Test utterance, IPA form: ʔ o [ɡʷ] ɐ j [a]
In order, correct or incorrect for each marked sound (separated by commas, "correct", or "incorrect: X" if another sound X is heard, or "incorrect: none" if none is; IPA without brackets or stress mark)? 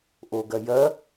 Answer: incorrect: ɡ, incorrect: ɐ